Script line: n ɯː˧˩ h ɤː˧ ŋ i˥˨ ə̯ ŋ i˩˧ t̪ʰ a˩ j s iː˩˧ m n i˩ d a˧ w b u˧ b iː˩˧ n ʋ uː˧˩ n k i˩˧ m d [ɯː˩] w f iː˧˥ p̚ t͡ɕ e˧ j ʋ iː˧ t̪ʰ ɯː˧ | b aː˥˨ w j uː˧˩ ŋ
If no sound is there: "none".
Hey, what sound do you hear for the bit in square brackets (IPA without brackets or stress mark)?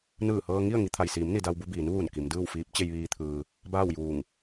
ɯː˥˨